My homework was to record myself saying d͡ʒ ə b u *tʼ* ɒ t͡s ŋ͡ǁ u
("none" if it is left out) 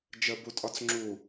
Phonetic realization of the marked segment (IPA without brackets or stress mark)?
tʼ